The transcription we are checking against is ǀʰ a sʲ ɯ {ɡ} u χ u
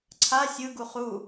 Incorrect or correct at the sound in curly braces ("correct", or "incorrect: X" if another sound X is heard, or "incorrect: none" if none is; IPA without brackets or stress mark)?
correct